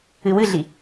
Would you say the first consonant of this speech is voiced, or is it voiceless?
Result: voiced